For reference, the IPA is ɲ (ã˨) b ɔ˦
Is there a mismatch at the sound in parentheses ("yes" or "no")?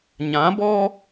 yes